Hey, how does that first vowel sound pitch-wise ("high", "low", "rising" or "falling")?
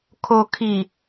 low